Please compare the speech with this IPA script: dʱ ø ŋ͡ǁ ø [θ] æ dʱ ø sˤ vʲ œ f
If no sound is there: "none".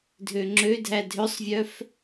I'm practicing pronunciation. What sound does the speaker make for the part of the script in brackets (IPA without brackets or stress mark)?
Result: dʱ